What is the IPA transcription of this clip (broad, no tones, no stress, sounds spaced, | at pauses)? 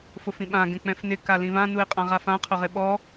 f ʊ f ĩ ɓ ã ɡ ɛ̃ k͡p ɛ̃ f n ɪ k a l ĩ v ã n u ɪ̯ qʼ ã ʁ a f ã qʰ ʊ ʁ ɪ ɓ ɔ